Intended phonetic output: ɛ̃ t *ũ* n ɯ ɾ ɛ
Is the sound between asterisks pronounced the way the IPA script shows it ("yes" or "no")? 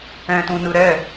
yes